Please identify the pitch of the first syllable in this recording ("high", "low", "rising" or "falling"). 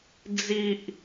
low